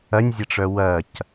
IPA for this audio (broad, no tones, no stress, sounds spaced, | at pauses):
ɐ nʲ zʲ ɐ ʈ͡ʂ œ w ɐ c